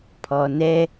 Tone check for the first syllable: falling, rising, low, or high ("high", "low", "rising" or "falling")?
low